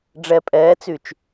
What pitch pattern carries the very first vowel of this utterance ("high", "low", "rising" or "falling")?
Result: low